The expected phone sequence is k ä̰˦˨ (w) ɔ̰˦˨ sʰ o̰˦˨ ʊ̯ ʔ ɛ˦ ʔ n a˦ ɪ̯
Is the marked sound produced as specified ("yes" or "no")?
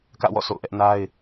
yes